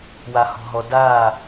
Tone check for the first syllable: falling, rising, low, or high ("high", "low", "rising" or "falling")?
low